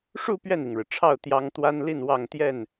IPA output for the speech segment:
ʂ u˥˧ p ɥ ɛ˥˩ n i˩ ŋ ɻ ɻ̩˩ ʈ͡ʂʰ ɑ˥˩ ʊ̯ t̪ j ɑ˥ ŋ t̪ w a˥ n l i˥˧ n w ɑ˥˧ ŋ t̪ j ɛ˥˩ n

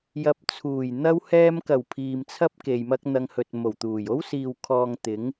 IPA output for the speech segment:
j ɐ˧ p̚ t͡sʰ uː˨˩ j n̪ ɐ˥ w h ɛː˧ m k ɐ˨˩ w pʰ iː˨ m t͡sʰ ɐ˥ p̚ k e˨ j m ɐ˥ k̚ n̪ ɐ˧ ŋ h ɵ˨ t̚ m o˨˩ w t̪ uː˨˩ j o˥ w s iː˨ w kʰ ɔː˨ ŋ t̪ ɪ˨˥ ŋ

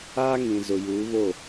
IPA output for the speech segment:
aː˦ ŋ ĩ˨ z ʊ˨ j uː˨˦ β o˦˨

